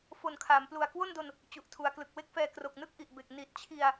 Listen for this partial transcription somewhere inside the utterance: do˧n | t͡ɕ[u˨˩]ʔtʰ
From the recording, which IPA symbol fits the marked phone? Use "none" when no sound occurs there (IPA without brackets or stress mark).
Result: u˨˩